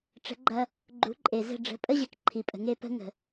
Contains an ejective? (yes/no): yes